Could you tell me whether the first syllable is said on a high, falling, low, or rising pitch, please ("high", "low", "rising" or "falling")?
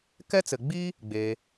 high